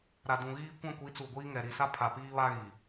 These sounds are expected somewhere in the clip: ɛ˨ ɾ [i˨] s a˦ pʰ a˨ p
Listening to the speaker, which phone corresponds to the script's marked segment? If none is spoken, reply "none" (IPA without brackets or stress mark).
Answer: i˨